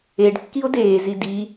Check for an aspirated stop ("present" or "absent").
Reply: absent